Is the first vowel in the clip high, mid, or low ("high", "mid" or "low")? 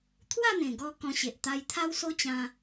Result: low